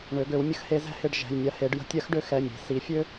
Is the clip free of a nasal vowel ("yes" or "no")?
yes